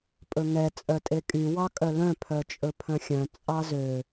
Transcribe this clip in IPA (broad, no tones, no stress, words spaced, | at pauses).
pʼɵŋɛ t͡sʼœtʼekʼy wɑkʼœlœ̃ pʰœt͡ʃʼɵpʰœ̃xʲœ̃ t͡sʼɑzø